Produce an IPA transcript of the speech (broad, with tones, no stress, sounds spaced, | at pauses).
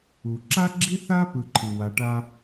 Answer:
u˩ ǁ a˦ ɡ͡ǁ i˦ θ a˦ p ɯ˨ ǃʰ ɯ˩ w a˨ ʈ a˦